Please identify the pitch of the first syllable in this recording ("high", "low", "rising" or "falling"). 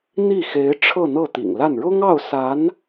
falling